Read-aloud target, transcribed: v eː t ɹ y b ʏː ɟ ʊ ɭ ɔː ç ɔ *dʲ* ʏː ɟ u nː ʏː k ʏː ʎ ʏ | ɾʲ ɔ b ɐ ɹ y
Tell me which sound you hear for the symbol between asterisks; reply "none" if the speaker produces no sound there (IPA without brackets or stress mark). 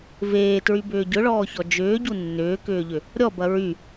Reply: d͡ʒ